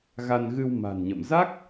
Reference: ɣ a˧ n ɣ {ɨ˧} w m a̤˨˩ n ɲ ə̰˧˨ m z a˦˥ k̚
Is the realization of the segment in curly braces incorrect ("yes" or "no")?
no